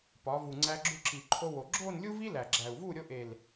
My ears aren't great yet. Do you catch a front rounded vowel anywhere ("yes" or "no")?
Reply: no